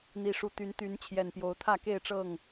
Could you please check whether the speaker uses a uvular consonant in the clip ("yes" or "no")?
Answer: no